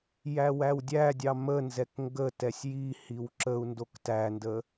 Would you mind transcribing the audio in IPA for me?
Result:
j æ w æ w dʲ æ dʲ ɑ m ə n z ɛ k ŋ ɡ ə t ɛ sʲ j i h i w ǁ ə u̯ n d o k t æ n d ə

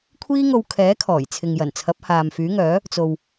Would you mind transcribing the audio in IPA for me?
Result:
kʷʰ iː˥ ŋ o˧ w kʰ ɛː˨˥ kʰ ɔː˨˩ j t͡sʰ ɪ˨ ŋ j ɐ˨˩ n t͡sʰ ɐ˨˥ p̚ h aː˨ m f yː˨˥ ŋ œː˨˥ | t͡s o˨ w

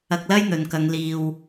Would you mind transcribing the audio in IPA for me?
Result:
ɐ˧ k̚ l ɐ˥ j n̪ ɵ˨ n k ɐ˨˧ ŋ l iː˧ w

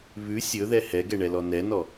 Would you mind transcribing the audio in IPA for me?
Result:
β ʉ sʲ ɵ ð ɛ h ɛ ɡ ɛ ɳ ɛ l ɔ n ɛ n ɔ

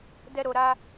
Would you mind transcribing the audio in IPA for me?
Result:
d ɛ˦ ɾ o˧ ɾ a˦

